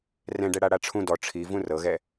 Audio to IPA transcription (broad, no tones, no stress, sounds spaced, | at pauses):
r ɛ̃ ɖ ɛ ɽ a ɽ a ʈ͡ʂʰ ũ d ɔ ʈ͡ʂʰ i v ũ r ɤ ɣ ɛ